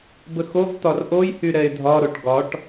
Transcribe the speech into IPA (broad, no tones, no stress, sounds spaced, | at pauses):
b ə x o v t̪ ɒ r ʔ o j h y ɾ ɛ ɪ̯ dʱ ɒ ɾ o ʈ ɡ ɒ ʈ